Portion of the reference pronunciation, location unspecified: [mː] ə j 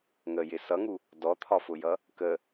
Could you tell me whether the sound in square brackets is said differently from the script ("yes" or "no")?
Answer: yes